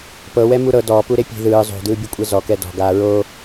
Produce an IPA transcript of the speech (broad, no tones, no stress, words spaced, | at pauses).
pɤwɛ muɾɤ dɔːpu ɾepʲe̤ ðɯː zˤo̤dɯːbʲukʷʼɛ zɔkɛ dɔ̤ ɡaːɹo